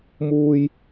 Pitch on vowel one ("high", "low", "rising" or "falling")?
high